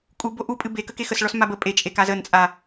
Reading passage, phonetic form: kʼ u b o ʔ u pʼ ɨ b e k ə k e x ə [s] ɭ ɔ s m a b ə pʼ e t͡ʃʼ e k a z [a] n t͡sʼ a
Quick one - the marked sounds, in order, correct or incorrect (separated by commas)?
correct, incorrect